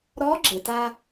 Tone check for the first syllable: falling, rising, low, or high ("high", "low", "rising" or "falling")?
rising